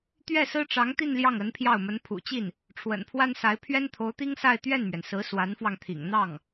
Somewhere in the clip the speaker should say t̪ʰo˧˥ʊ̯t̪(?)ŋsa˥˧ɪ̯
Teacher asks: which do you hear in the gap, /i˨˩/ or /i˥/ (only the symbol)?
i˥